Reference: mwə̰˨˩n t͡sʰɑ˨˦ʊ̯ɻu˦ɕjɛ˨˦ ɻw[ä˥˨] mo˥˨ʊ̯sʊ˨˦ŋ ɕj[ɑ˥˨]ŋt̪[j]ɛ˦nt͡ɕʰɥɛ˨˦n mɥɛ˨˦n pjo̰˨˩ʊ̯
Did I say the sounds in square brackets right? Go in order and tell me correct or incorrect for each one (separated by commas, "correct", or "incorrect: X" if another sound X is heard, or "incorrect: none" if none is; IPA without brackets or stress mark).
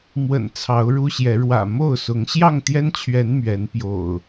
incorrect: ä̰˨˩, correct, correct